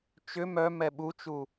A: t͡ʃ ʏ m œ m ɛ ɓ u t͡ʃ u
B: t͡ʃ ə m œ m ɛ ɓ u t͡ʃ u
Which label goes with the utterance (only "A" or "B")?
A